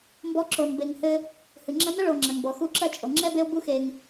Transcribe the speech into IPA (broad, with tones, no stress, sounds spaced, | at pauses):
m b ɔ˦ ǁ o˨ n b e˨ ŋ h ɘ˦ | h ɨ˩ ŋ͡ǁ ɐ˦ n ɐ˥ ɭ o˨ ŋ͡ǁ ɐ˩ ŋ b ɔ˩ x u˦ ǁ ɐ˥ t͡ʃʼ o˩ ŋ͡ǁ ɛ˥ b e˦ o̯ b u˦ x e˨ ŋ